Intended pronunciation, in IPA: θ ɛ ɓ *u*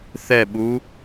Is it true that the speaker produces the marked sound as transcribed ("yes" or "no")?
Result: yes